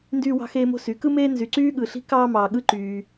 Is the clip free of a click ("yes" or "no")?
no